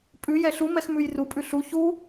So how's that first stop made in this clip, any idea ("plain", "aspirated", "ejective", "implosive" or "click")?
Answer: ejective